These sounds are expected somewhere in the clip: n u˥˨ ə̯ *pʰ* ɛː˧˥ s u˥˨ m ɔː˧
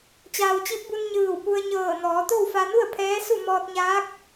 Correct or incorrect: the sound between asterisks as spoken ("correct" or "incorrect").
correct